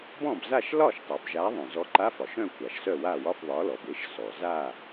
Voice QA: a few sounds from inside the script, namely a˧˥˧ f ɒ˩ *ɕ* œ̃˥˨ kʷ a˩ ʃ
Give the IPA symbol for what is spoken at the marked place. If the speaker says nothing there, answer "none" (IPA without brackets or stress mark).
ʃ